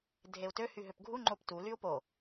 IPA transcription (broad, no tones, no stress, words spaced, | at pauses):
dʱeu̯tø hyɦøpɡʱu ŋ͡ǃoptu lyu̯po